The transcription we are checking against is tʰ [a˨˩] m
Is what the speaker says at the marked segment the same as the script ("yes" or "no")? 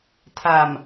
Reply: yes